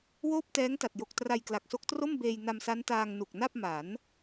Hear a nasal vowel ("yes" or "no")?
no